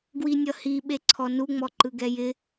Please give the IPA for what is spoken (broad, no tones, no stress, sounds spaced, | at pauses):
ɡ w i nʲ ʌ h i ɓ e ǀʰ ɔ n u ŋ͡m ɔ ǃ ɯ ɡ ɛ j ɪ